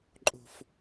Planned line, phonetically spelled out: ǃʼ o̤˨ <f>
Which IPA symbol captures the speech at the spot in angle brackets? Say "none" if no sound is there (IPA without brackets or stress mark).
f